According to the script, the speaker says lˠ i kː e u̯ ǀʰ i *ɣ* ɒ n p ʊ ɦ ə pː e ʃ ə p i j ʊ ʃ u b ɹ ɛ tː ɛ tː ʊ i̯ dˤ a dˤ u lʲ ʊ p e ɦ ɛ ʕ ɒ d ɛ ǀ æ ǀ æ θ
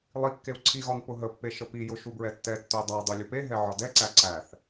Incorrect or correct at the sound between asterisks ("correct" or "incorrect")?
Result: correct